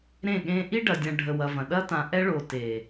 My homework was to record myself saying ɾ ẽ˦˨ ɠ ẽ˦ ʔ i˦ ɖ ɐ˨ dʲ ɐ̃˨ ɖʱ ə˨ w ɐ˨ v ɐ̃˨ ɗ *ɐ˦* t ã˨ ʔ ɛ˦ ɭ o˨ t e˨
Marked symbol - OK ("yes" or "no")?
yes